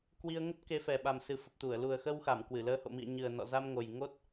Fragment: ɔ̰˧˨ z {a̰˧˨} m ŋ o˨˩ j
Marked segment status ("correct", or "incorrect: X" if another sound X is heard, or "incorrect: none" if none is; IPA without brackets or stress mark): incorrect: a˧